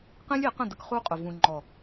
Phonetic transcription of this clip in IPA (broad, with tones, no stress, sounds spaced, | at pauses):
q ẽ˦ lʲ e˨˦ q ə̃˦˨ d ə˦ k χ u˦ qʼ ʊ˨ v ũ˨ ŋ͡ǃ ɔ˨